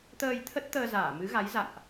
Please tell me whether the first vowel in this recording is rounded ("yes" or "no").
no